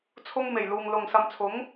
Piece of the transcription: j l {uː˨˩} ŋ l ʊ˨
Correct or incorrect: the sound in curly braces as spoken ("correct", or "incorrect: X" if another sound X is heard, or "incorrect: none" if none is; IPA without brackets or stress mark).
incorrect: uː˨